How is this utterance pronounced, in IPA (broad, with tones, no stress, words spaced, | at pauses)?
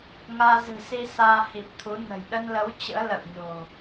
ŋaː˧zɨ̤˨˩si˧ saː˧ hi˨˩p̚t̪ʰu˨˦ nə̤˨˩j ɗə˧nlə˨˦w t͡ɕə̰ː˧˥ lə̰˧˨wɲo̤˨˩